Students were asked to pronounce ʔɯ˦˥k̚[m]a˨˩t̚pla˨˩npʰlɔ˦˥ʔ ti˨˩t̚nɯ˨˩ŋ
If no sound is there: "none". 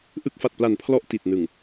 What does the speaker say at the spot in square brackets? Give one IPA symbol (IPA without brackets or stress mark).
f